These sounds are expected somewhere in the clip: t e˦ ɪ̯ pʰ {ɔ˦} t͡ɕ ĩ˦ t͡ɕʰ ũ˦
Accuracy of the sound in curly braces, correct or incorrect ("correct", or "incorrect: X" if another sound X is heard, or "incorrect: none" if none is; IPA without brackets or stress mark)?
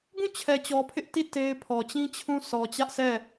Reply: incorrect: ɔ˨